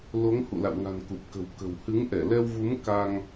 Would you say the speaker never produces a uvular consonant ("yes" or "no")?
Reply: yes